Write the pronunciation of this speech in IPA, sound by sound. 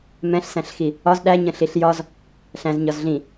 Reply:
m ɛ̃ ɬ s æ̃ ɬ x i | ɒ z ɗ æ ɲ ə̃ ɬ i ɬ j ɒ z | ɬ æ̃ z ɲ ɒ z ɮ ĩ

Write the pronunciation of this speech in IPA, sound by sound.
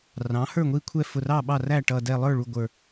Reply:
r ɑ̃˩˥ h ə˞˥˩ ŋʷ i˥˩ kʷʰ ɛ˥˩ f ʊ˧˩ r ɑ˥˩ ɓ ɑ˥˩ r æ˥˩ ʈ ʌ˧˩ d ɛ˧˩ lˠ ə˞˥˩ ɭ u˧˩ ɡʷ ə˞˧˩

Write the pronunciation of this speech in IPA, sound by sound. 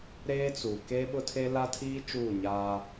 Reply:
ɾ eː˦ t͡s u˨ k eː˦ ɓ ʊ˦ tʰ e˦ l a˦ tʰ iː˦ t͡ʃ uː˦˨ ɲ aː˦

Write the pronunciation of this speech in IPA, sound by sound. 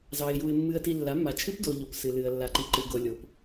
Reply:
z ɑ˨ ɪ̯ j u˨ ɪ̯ mː ɨ˨ ə̯ t i˨ lː a˩˥ mː a˨ t͡ʃʰ ɨ˦˥ p d o˨ ʎ o˨ p s ɨ˨ l ɨ˨ ə̯ lː a˨ ǃ i˨ ǃ ɨ˨ ɡ o˨ lʲ o˨ p

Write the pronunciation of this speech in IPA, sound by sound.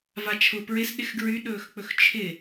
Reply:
v a t͡ʃʰ ʊ p ɹ ɪ s ɗ ɪ x ɡ ɹ y ɗ ɵː x k͡p ɵ x t͡ʃʰ ɪ

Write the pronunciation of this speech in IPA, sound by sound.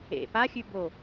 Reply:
ḛ p a xʲ ʉ b o

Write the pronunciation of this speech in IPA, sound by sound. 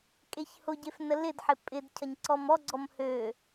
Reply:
kʼ e ç h ʊ ɟ e f n ə l ɪ d ħ ɪ pʼ ɪ d cʰ ɐ ɲ ǀ ɔ m ɔ ɡ͡ǀ ɔ m h ø

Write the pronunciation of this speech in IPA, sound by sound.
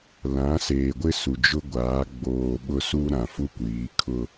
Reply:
l ã˨˦ s eː˨ ɡʷ ɪ˦ s u˨ d͡ʒ ʊ˦ ɡʷ aː˨˦ ɡ͡b oː˨ ɓ ʊ˦ s u˦ ɾ ã˨ f u˦ kʷ iː˨˦ kʰ ʊ˦

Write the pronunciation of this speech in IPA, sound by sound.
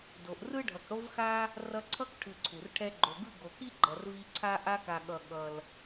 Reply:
d o˨ ʔ r ɯ˥ ɖʱ ʌ˨ k ɽ o˥ v x a˥ | r ʌ˦ ǀʰ ʌ˥ k ʈʰ ɯ˨ ǀʰ u˩ r ʈʰ ɛ˦ ɡ͡ǃ o˨ ɡ ɯ˥ ɡ o˨ k i˥ ɡ͡ǃ ʌ˨ r v i˦ ǀʰ a˥ ʔ a˦ k a˨ ɠ ʌ˨ ɠ ʌ˨ l

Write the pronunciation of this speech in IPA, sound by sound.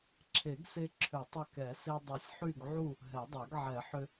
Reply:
ǁʰ e˨˩˦ ɡ s e˧ ǁʰ ʏ˨˩˦ tˤ ʏ˧˩ k ɛ˨˩˦ s e˧ dˤ ɯ˨˩˦ sʲ ħ y˥˨ ɡ ʕ u˥˨ | ɦ ɛ˨˩˦ dˤ ɛ˨˩˦ ɡ ʕ ɛ˨˩˦ ħ ʏ˧

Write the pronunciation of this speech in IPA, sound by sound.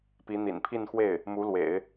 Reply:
p i˧˥ n̪ ḭ˨˩ n pʰ i˥˧ n x w e˥˩ ɪ̯ | m u˧˥ l w ḛ˨˩˦ ɪ̯

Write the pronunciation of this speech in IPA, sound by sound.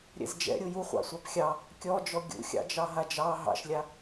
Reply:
ɾʲ ɛ̰ z d͡ʒ ɛ̰ ɾʲ u j u χʷ ɑ̰ sʷ a p xʲ ɑ | kʲ ɔ d͡ʒ ɔ ɡʲ ṵ xʲ ɑ̰ d͡ʒ ɑ ɦ a d͡ʒ ɑ ɦ ɑ̰ ʃ lʲ a

